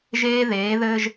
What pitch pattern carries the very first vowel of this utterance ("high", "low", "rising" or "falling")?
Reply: high